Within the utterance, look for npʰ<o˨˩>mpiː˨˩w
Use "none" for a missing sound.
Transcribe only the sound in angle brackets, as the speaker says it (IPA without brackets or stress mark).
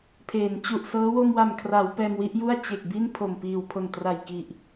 o˨˩